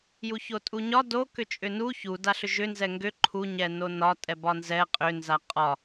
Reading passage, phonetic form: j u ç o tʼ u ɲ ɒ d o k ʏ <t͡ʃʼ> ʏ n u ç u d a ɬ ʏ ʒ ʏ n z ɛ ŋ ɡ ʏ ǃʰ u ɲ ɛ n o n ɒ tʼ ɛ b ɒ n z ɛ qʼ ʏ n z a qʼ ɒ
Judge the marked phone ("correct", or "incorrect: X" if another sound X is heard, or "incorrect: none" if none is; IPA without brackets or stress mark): correct